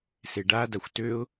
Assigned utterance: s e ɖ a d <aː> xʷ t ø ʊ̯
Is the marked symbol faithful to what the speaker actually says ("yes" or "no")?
no